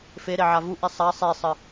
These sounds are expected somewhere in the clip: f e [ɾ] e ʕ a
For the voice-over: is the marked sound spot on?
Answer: yes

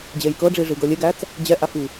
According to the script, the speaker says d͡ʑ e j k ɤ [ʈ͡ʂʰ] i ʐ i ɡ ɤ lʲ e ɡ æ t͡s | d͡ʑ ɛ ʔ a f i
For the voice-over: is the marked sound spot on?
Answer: no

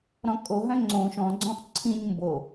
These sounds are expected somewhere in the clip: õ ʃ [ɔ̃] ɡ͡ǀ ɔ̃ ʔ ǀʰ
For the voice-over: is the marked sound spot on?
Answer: yes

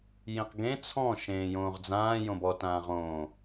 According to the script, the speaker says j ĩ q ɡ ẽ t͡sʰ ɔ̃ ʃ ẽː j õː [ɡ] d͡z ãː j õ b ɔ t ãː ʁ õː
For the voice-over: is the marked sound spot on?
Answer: no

